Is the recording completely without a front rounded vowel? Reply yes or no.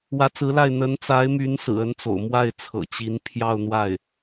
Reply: no